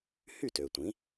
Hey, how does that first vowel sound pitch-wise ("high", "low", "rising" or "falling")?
falling